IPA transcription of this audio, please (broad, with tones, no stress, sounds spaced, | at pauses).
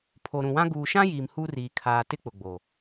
pʰ o˨ ɾ ũ˨ w ã˦ ɡ uː˨ ʃ ã˦ j iː˨ m h u˦ r iː˨ kʰ aː˨ t ɪ˦ k͡p ʊ˨ ɡ͡b o˨